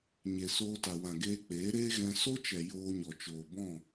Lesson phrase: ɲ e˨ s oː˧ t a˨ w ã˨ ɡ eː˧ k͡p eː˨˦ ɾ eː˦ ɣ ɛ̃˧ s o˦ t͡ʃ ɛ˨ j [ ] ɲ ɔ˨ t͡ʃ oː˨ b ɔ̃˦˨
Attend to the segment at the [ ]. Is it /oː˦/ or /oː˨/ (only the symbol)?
oː˦